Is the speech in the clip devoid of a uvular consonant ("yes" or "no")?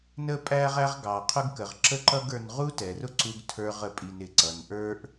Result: no